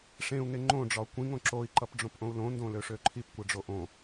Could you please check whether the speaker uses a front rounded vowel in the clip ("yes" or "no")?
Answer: yes